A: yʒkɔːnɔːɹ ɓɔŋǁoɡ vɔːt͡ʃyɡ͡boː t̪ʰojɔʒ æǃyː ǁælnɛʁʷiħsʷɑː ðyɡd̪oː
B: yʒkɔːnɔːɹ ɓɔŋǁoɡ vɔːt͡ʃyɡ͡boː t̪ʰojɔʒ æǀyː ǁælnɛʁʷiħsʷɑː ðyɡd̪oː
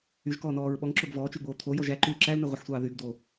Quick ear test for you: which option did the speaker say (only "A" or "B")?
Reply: A